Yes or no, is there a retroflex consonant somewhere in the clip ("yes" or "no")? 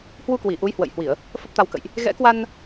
no